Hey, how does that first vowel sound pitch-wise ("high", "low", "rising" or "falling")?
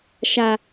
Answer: high